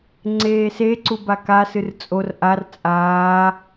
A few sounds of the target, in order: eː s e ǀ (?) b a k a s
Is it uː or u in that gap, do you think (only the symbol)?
u